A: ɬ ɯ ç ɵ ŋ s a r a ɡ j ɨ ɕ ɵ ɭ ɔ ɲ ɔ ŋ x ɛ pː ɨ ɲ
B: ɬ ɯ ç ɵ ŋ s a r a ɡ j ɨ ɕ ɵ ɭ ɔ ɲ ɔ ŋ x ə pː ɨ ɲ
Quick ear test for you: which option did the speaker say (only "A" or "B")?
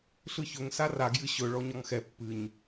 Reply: A